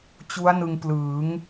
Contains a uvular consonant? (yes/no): no